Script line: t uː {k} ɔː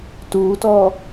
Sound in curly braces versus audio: incorrect: t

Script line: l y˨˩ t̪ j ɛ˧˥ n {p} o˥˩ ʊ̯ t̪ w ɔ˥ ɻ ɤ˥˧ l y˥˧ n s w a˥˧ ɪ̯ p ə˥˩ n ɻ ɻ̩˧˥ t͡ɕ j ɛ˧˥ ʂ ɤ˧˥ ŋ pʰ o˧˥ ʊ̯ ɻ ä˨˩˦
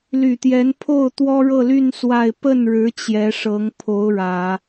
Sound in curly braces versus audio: incorrect: pʰ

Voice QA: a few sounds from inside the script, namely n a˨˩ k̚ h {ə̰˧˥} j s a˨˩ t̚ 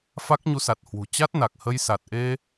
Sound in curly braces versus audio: incorrect: ə˧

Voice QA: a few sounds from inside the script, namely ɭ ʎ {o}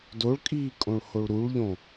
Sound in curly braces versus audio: incorrect: õ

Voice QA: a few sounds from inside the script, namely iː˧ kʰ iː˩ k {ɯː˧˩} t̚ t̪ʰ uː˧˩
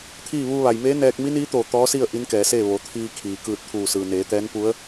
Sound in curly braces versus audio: correct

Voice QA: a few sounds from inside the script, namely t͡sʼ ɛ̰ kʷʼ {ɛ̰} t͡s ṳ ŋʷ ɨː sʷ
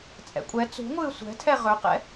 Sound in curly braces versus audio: incorrect: ɛ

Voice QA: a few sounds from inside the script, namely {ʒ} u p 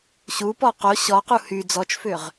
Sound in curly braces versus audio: incorrect: ɕ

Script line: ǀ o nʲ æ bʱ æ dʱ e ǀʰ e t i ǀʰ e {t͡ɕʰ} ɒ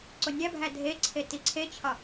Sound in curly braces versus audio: correct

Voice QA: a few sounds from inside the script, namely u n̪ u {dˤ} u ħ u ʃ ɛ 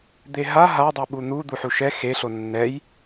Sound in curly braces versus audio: incorrect: d̪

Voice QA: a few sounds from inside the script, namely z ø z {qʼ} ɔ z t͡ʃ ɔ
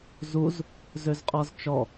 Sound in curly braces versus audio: correct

